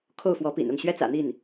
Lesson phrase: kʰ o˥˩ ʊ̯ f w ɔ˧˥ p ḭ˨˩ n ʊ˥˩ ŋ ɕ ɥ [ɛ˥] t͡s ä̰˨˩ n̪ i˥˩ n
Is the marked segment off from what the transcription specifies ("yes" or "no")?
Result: no